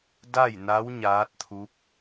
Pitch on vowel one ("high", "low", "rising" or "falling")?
falling